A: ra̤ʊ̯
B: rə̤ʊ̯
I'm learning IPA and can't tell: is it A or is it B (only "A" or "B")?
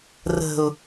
B